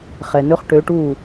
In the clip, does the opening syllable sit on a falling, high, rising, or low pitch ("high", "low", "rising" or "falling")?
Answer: low